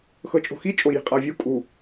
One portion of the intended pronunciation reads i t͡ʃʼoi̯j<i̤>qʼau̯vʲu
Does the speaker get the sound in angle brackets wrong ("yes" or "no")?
no